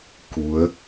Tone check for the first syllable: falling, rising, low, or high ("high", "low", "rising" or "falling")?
rising